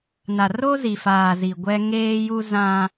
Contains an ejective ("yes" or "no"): no